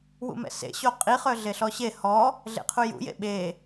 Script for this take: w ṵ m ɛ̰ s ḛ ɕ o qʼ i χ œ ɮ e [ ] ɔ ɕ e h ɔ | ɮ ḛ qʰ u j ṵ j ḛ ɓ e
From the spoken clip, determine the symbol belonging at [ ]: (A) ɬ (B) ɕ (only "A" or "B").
A